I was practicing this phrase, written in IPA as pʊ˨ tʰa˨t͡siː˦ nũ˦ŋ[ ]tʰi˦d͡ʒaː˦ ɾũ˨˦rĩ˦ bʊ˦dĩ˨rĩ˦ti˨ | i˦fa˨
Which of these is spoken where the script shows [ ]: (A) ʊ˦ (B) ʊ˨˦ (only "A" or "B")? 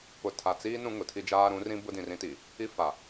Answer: B